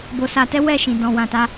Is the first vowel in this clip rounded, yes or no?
yes